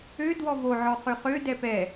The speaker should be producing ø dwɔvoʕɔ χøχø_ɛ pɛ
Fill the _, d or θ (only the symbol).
d